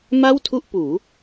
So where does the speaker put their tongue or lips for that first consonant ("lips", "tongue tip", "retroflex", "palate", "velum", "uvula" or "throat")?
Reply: lips